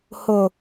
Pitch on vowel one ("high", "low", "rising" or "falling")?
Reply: low